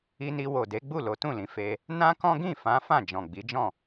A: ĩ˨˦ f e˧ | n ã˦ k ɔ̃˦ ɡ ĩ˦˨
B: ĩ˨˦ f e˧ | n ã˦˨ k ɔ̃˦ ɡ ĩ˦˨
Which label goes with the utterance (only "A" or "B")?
A